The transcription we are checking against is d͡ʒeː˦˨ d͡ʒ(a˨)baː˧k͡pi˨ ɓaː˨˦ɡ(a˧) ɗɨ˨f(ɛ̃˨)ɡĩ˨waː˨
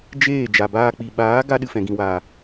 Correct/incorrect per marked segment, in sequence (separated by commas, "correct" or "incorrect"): correct, correct, correct